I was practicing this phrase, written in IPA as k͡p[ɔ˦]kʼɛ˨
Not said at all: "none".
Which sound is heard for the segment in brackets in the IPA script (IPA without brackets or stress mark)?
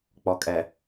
ɔ˨